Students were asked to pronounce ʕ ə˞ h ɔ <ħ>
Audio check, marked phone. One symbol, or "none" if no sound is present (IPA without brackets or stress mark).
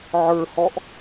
ʔ